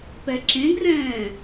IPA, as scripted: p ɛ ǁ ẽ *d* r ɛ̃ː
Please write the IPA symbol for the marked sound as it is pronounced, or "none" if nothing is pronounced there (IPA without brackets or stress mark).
ɡ